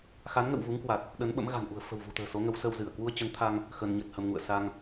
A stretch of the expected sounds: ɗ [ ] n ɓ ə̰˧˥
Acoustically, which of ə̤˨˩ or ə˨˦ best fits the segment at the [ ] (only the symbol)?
ə˨˦